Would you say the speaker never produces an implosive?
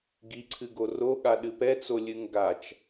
no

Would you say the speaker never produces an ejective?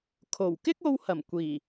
yes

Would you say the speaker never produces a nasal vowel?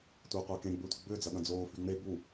no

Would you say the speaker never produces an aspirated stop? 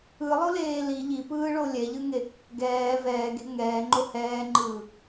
yes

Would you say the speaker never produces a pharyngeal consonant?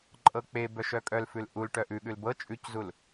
yes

